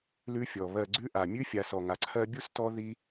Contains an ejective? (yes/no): no